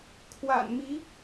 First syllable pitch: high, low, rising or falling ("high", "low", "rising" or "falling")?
low